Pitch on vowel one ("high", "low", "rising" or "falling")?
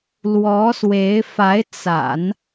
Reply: rising